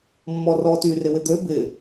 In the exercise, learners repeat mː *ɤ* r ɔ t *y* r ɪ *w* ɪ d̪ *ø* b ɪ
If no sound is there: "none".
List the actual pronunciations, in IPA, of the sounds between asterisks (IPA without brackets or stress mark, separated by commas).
ɔ, y, w, ø